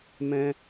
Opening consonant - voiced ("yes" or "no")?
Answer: yes